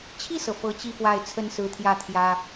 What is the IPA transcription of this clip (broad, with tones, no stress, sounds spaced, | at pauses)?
t͡ɕʰ i˥˩ s ɤ˩ f ɤ˧˥ t͡ɕ i˥˧ f w a˥˩ ɪ̯ t͡sʰ ə˥ n s ɹ̩˧˥ t̪ʰ j ä˥˩ t̪ʰ j ä˥